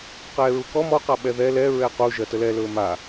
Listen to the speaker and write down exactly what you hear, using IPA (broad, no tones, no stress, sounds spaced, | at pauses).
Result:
q ɛː ɹ u k ɔ m ɔ q a ɓ ɛ ð ɛ l ɛ ɹ ɛ q u ʒ ɜ t ə l ɛ l ɵː m a